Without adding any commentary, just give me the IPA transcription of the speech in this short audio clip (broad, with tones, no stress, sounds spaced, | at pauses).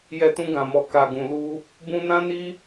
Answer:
j ɛ˧ t ũ˧ ɡ ã˨ m ɔ˨ k a˨ ɡ ũ˨ l u˧ | b ũ˧ n ã˦ n i˦